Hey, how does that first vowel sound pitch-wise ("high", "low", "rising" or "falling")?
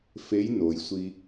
rising